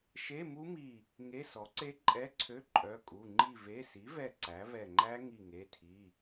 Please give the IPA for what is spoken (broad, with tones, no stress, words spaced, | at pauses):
ʃe˧˥˧mu˦˥mi˧˩ | ŋe˧˥˧sɔ˩˥ǀe˦˥ ǃʼɛ˧˥˧ǀʰø˧˥˧ ǃʼœ˩˧˩kʼu˩˧˩ ŋ͡ǃi˧˩ve˩˧˩si˩˥vɛ˧˩ ǀæ˩˥vɛ˧˩ŋ͡ǃæ˦˥ ŋi˧˩ ŋe˩˧˩tʰi˩˧˩